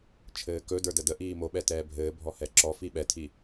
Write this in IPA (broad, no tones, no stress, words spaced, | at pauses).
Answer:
t͡ʃʰɘːkɵdə˞ dədəʔiː moɓɛ tɛːbʱɘːbʱɔ hɛǁɔfi ɓɛtʰi